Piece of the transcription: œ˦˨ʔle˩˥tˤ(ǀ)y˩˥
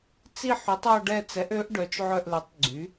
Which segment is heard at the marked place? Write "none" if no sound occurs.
ɡ͡ǀ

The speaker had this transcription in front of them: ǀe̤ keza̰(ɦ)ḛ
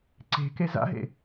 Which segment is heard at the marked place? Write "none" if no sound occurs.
ɦ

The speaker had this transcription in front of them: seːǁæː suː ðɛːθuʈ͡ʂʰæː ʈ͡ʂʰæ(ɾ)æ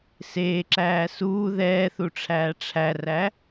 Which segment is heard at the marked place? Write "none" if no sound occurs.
r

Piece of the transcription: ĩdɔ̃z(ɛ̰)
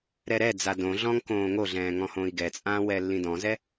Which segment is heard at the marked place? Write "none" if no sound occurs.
ɛ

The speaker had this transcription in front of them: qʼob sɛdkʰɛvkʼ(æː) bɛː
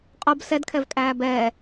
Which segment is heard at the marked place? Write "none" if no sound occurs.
æː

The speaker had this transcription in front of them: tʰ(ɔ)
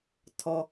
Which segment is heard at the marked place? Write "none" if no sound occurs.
ɔ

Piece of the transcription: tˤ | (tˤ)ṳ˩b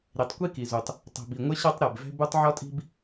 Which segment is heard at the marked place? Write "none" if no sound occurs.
tˤ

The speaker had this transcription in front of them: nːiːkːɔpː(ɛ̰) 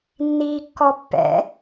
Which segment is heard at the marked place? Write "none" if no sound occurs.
ɛ̰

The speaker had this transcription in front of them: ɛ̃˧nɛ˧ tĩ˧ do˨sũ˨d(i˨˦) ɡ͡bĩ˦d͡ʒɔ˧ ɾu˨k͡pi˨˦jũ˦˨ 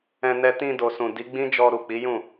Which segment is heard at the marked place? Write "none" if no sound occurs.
i˨˦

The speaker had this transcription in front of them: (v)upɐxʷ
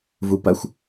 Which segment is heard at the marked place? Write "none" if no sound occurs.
v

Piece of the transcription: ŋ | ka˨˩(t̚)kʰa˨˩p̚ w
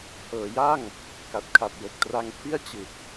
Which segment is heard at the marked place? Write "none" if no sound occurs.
t̚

